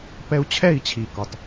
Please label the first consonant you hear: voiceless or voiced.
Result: voiceless